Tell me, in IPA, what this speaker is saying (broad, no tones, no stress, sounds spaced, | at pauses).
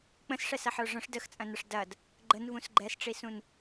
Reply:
k͡p ə̃ s ʂ ɛ s ɐ ħ ə˞ ʐ ə̃ ʂ d ə x t͡sʼ ɐ̃ n ɐ ʂ d ɐ d | ɡ͡ǃ ə n v ũ s ɡ͡ǃ ɛ s ʈ͡ʂ i s ũ n